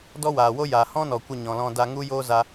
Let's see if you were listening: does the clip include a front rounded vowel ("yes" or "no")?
no